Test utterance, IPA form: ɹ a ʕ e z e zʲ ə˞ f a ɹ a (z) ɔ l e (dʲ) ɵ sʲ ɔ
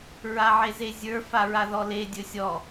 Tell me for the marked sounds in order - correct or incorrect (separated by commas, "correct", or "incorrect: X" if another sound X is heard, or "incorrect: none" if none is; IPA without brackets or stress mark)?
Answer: incorrect: ð, correct